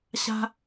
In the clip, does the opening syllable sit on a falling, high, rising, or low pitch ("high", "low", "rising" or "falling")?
high